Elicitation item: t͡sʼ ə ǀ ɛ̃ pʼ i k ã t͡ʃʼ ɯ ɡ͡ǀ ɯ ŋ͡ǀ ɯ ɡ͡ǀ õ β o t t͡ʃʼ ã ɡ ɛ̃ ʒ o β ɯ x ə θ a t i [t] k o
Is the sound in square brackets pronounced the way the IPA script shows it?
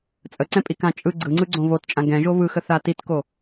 yes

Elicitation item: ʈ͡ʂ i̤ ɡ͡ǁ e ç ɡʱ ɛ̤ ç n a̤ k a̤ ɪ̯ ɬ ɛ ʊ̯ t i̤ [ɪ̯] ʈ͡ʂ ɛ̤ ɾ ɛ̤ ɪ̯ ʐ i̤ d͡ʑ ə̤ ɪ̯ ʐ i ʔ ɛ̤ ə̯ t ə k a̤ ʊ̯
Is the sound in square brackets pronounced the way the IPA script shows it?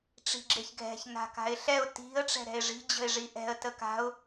no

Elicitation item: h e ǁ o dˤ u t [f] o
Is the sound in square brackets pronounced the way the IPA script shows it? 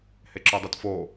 yes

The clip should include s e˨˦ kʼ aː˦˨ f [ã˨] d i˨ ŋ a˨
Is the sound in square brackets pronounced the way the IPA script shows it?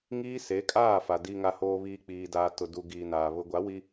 no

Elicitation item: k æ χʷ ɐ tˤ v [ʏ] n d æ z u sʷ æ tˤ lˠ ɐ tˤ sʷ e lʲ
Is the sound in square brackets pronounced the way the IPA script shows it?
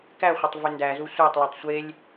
yes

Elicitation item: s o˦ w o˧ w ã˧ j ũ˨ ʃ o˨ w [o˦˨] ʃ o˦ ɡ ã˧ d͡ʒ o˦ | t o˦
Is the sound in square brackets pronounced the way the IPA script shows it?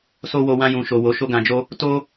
no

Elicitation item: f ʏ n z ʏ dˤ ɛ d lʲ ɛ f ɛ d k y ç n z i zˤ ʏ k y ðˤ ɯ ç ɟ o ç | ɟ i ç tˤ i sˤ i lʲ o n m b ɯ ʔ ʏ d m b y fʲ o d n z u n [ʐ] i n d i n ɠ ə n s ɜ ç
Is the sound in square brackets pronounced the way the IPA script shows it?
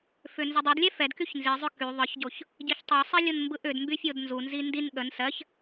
no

